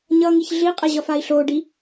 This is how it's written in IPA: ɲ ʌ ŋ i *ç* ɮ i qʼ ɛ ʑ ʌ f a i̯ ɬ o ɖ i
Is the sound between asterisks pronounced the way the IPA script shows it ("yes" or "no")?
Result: yes